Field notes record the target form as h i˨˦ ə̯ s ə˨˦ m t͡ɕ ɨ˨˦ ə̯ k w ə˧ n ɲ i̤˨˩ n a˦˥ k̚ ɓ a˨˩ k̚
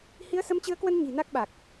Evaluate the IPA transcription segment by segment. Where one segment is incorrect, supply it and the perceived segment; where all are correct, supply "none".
none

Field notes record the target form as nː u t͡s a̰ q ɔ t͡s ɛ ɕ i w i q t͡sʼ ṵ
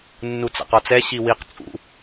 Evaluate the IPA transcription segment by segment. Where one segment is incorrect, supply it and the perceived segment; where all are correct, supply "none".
none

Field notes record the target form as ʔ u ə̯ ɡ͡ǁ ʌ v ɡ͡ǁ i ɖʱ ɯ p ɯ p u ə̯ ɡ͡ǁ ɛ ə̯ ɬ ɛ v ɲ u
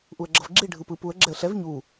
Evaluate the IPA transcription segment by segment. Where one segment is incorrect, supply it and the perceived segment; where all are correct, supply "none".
none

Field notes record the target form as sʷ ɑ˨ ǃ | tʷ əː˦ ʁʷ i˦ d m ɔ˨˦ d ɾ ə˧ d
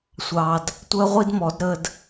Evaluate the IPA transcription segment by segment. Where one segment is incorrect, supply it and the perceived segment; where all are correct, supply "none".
ǃ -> d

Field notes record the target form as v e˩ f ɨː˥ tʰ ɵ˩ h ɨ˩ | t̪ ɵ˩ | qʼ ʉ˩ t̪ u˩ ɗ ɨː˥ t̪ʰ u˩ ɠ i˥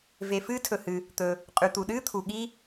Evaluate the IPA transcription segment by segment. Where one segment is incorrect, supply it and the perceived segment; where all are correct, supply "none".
none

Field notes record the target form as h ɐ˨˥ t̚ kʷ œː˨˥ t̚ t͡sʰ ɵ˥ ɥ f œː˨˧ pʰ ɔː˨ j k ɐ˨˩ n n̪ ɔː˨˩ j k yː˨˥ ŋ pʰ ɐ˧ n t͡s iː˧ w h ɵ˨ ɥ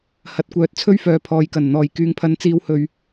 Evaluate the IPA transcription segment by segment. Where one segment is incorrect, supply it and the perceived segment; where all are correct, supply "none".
none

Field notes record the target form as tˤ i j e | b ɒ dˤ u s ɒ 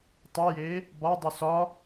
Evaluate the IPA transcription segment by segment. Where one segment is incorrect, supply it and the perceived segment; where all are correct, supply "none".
none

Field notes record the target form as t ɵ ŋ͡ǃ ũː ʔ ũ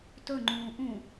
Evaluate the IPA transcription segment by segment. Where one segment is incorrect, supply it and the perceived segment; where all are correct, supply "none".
none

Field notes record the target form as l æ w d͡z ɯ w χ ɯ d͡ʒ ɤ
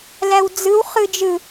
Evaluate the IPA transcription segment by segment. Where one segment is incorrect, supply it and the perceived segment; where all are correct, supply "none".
ɤ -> ɯ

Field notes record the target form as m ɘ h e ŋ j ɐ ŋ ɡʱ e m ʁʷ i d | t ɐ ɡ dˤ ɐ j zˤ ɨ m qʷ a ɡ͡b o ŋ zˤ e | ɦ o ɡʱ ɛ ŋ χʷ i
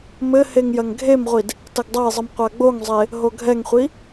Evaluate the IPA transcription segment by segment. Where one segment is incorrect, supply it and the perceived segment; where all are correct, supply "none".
none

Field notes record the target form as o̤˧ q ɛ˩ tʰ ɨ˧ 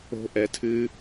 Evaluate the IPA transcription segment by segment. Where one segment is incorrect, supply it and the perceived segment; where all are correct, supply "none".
q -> ʔ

